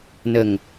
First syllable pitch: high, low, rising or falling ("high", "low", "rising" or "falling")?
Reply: low